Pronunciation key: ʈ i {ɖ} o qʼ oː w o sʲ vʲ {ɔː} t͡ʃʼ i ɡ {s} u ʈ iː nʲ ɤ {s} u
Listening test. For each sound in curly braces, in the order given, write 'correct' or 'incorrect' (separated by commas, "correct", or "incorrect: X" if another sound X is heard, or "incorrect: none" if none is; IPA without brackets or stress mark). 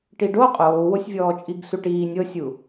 correct, correct, correct, incorrect: sʲ